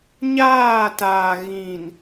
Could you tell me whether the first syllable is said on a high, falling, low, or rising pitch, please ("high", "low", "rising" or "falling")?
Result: falling